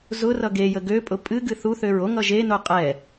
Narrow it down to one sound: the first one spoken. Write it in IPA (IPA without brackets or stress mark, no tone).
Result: z